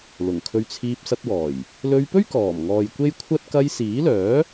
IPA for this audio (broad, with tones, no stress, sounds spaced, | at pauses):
l ʊ˨˩ ŋ kʰ ɵ˧ ɥ t͡sʰ iː˧ p̚ s ɐ˧ t̚ w ɔː˨˩ j | l ɵ˧ ɥ p ɵ˥ ɥ k ɔː˨˩ m ŋ ɔː˨ j kʷ e˥ j kʷʰ ɐ˥ t̚ k ɐ˧ j s iː˨˥ l œː˨˥